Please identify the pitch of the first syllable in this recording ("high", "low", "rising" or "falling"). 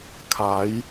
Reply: rising